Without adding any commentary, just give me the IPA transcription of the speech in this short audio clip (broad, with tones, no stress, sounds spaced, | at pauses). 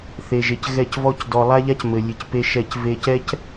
θ e˨ ʒ e˨ c ɣ ɛ˦˨ c v ɔ˦ c d ɔ˨ lˠ a˦ ʎ a˦ c m ɘ˨ lʲ ɨ˨ c p e˦ ʃ ɛ˦˨ c v e˦ c ɛ˦ c